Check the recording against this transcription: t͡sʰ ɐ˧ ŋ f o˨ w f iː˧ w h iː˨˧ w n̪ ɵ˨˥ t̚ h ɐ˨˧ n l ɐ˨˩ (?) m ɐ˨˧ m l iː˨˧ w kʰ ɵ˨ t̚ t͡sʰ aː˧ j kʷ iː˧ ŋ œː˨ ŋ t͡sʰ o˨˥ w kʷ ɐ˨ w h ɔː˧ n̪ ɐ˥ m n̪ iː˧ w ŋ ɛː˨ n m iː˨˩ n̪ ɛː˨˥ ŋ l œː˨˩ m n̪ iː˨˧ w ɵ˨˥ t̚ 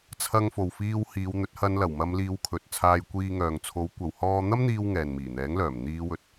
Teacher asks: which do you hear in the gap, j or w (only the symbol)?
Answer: w